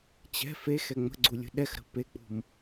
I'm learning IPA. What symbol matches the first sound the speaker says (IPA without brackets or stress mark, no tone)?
t͡ɕ